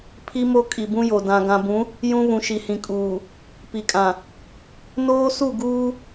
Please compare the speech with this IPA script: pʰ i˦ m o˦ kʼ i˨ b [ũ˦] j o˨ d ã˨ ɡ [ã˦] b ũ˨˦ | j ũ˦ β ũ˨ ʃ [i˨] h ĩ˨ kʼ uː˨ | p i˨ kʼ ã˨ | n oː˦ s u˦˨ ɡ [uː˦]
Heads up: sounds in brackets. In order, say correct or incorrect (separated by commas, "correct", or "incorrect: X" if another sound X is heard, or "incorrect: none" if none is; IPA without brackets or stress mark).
correct, incorrect: ã˨, correct, correct